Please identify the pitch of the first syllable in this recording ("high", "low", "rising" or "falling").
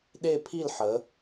falling